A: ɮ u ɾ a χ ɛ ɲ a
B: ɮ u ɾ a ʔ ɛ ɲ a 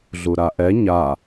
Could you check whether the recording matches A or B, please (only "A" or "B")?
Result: B